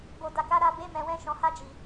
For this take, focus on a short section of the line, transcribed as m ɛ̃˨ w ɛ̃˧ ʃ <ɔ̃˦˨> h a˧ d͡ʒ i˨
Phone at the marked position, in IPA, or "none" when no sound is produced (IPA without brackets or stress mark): ɔ̃˨